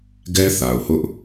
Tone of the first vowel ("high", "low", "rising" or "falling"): high